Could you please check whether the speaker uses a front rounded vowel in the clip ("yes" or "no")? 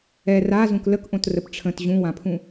no